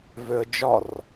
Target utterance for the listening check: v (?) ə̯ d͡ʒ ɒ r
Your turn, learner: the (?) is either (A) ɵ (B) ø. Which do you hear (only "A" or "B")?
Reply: B